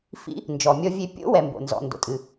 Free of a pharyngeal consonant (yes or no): yes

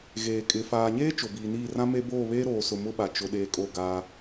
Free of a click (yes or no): yes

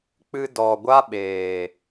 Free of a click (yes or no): yes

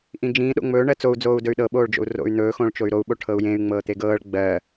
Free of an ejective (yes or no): yes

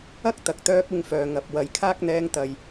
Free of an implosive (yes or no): yes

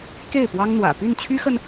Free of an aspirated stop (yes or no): no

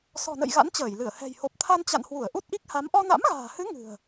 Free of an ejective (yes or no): yes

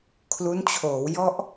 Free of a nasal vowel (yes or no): yes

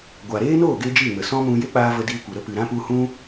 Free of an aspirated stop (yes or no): yes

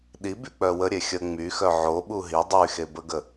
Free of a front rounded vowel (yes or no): no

